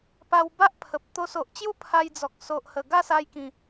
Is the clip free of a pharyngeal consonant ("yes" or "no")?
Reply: yes